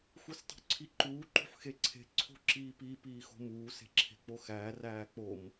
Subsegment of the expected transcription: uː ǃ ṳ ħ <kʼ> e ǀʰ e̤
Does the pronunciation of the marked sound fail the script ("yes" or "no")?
yes